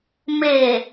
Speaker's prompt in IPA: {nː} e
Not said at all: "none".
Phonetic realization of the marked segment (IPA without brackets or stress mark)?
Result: m